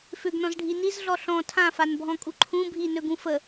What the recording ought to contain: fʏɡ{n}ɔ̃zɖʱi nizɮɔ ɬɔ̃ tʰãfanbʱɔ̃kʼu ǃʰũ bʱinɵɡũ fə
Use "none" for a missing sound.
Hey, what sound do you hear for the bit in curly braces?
n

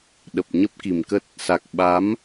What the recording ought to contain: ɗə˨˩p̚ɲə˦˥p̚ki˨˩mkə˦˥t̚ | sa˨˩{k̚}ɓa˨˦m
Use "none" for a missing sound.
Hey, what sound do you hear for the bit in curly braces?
k̚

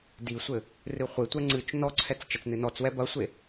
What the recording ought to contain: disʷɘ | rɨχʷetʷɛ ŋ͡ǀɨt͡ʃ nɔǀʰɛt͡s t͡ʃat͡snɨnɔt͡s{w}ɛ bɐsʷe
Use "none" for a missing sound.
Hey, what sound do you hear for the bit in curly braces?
w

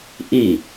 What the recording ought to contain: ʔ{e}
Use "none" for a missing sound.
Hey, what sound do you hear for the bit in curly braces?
i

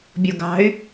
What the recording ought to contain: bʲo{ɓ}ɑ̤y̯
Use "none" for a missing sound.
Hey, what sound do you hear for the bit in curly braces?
ɡ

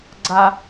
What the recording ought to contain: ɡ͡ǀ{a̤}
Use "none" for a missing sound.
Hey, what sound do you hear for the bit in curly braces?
a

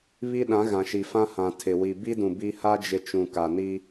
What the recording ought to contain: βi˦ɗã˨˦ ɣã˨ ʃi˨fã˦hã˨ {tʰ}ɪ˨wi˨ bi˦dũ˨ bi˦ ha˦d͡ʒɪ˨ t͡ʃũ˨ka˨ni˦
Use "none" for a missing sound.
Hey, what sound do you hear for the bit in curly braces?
tʰ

